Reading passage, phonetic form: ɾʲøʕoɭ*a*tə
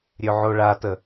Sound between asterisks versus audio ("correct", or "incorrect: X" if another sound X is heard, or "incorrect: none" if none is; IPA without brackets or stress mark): correct